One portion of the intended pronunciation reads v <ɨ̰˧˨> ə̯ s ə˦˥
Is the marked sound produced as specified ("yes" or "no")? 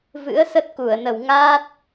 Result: no